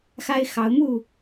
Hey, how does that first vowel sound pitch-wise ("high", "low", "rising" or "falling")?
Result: high